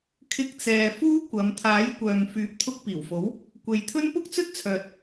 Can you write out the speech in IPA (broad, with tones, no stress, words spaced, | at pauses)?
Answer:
kʰɪ˧k̚t͡sɛː˨ fuː˥kʷɐ˨˧m t̪ʰaː˨˥jkʷœː˨ŋ fyː˨˥p̚t̪ʰʊ˧k̚piː˨˩wfo˨˥w | kʷe˨jt̪ʰɵ˥n pʊ˥k̚t͡sɵ˥t̚t͡sʰœː˨t̚